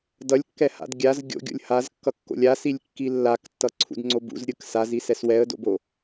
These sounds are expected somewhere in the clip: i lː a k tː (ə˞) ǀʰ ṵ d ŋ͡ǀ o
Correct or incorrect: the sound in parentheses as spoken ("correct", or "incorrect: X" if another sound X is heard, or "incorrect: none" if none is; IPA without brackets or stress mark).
incorrect: ʌ